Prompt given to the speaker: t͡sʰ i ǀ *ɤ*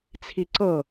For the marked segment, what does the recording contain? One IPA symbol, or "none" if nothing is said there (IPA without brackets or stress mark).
ɤ